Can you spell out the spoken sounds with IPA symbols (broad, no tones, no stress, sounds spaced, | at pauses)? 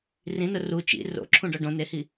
r ĩ n ʊ r u t͡ʃ ḭ r o̰ ǁʰ ũ ɖ ɔ ɖ õ n e h i